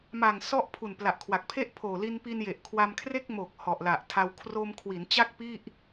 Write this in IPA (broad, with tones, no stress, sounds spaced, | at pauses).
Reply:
m a˨˩ ŋ s ɔ˥˩ ʔ pʰ u˨˩ n p l a˨˩ ʔ kʰ w a˨˩ k̚ pʰ e˥˩ ʔ pʰ oː˨˩ l i˧ n p i˧ n j e˨˩ ʔ kʰ w a˧ m kʰ r e˥˩ k̚ m o˨˩ k̚ h ɔ˨˩ ʔ l a˨˩ ʔ tʰ a˧ w kʰ r oː˧ m kʰ w i˩˦ n t͡ɕ a˥˩ k̚ p i˥˩ ʔ